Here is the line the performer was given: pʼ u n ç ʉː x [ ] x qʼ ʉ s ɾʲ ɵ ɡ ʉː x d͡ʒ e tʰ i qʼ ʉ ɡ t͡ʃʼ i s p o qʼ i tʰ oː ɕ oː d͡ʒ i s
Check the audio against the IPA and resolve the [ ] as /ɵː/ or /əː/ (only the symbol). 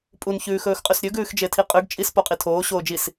ɵː